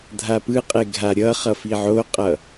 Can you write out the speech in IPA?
dʱ a p ɯ qʼ e ɡʱ a ɾʲ ʌ χ ʌ f i ʕ o qʼ ʌ

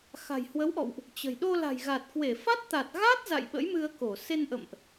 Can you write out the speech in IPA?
x a̤˨˩ j h w ə˨˦ w ʔ ɔ̰˧˨ w ʔ | t͡ɕ ə̤˨˩ j ɗ o˧ l a̤˨˩ j ɣ a˨˩ t̚ k w e˧˩ f a˦˥ t̚ t̪ a˨˩ t̚ ɣ a˦˥ t̚ z a̰˧˨ j ɓ ə̰˧˥ j m ɨ˧ ə̯ k o˧˩ s e˧ n ʔ ə̰˧˨ m ʔ

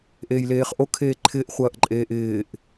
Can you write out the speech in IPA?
ʔ eː j l eː χ ʔ o kʰ eː ǃʰ ɪː ʔ χʷ ɐː ʔ ǃʼ eː ʔ ɪː ʔ

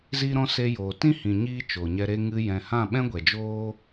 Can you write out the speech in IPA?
z iː˦ ɾ ɔ̃˦ s e˧ j oː˨ t ĩ˦ h ĩ˨ ɲ iː˦ t͡ʃ oː˨ ɲ ɛ˧ ɾ e˦ ŋ ɨ˧ j ɛ̃˨ h ã˦˨ ɓ ɛ̃˦ ɡʷ ɛ˨ d͡ʒ oː˦

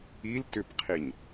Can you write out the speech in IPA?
i l t ʏ p qʰ i ɲ

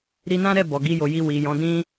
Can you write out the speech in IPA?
ɾ i˧ n ã˦ ɾ ɛ˦˨ b ɔ˨ ɡ i˧ j o˨ j i˧ w i˨ j ɔ̃˨˦ d ĩ˦

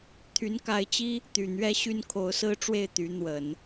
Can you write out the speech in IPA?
t̪ʰ y˧˥ n k a˧˥ ɪ̯ t͡ɕ i˥ | t̪ y˨˩ n̪ ɥ ɛ˥ ɕ y˥˩ n kʰ o˧˥ ʊ̯ s ɹ̩˥ ʈ͡ʂ w e˥˩ ɪ̯ t̪ y˧˥ n̪ w ə˨˩˦ n

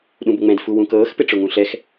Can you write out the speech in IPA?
ɗ ũ b ʊ ŋ͡m ɛ̃ d f u w ũ k ɤː x p ɪ ʈ͡ʂ ʊ ŋ ũ ɬ ɛ x

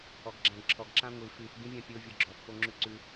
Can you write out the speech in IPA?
ɔ ɡ ɡ͡ǁ ã ɡ ǁʰ ɔ ɡ ǁ ã ŋʷ i f ʉ f ɡ ĩ vʲ ã pʲ o vʲ ɔ ɡ͡ǁ ɔ f p o ŋ͡ǁ ʉ ǀ ʉ

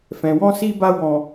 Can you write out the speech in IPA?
f ɛ̃˨ w ɔ̃˧ s i˧ b a˧ w ɔ̃˨

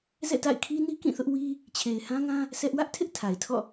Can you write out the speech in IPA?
z ɛ̰˦˨ t a̰˦˨ ɪ̯ kʰ i˦ n i˦ k ĩ˦˨ θ ʊ˦ ʔ w i˦ | t͡ɕʰ e˨ ɪ̯ h ã˦ ŋ ã˦ | sʰ ɛ˦ ʔ w ä˦ ʔ tʰ ɪ˦ ʔ tʰ a˨ ɪ̯ tʰ ɔ̰˦˨

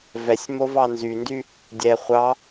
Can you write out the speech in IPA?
v ɛ sʲ m o v ɑ n z y n d y | dʲ ɛ χʷ ɑ

